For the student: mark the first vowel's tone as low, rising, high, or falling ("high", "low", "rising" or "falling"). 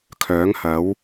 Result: rising